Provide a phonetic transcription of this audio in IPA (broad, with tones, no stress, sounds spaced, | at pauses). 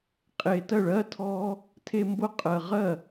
qʼ e˨ t ɜ˥˩ ɭ ɜ˧˥˧ tʰ ɔ˥ | tʰ e˥˧ m b ʊ˥˧ qʼ ɜ˨ ʁ ɜ˥˩